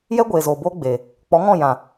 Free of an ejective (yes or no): yes